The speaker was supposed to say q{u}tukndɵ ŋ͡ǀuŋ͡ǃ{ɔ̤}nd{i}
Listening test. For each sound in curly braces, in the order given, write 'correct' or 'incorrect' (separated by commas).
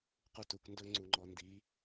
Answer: correct, incorrect, correct